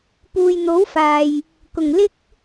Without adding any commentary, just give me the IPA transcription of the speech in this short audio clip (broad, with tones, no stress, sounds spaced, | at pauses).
p uː˨ j n̪ o˨˥ w f aː˨ j | k ʊ˨˩ ŋ l ɪ˥ k̚